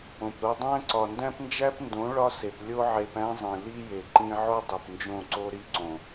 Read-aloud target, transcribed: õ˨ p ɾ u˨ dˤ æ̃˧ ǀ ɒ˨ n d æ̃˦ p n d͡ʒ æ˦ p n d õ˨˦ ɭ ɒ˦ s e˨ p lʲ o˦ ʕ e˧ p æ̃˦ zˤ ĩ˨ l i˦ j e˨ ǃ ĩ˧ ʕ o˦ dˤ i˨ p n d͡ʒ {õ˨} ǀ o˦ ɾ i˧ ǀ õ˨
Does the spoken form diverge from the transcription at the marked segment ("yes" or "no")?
yes